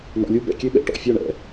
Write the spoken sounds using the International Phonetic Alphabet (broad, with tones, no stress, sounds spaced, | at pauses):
n ɔ̰˩ lʲ u˧ b ɛ̰˩ kʲ ø˧ ɓ ɛ̰˩ ʈ ɔ̰˩ fʲ ɔ˧˩ ɳ ɛ̰˩